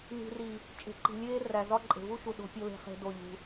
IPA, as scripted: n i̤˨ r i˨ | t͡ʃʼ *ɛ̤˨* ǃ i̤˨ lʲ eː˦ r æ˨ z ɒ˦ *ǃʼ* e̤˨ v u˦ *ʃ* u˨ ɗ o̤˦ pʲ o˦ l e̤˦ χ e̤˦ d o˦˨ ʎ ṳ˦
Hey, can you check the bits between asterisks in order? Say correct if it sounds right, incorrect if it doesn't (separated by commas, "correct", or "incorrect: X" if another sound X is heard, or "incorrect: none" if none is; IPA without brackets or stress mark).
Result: incorrect: e̤˨, correct, correct